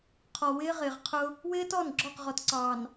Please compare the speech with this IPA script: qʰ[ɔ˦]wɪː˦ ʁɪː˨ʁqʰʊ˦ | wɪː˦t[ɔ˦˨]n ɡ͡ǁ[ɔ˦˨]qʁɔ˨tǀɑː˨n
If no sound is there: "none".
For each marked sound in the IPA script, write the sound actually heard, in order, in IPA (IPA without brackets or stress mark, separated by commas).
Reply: ɔ˨, ɔ˦˨, ɔ˦˨